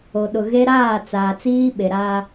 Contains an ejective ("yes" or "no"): no